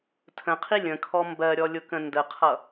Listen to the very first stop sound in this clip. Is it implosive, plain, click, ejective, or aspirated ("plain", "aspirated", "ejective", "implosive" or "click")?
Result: aspirated